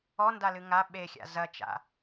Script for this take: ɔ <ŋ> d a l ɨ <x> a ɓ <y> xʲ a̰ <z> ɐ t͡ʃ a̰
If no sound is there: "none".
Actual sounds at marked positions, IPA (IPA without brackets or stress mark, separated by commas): n, ŋ, e, z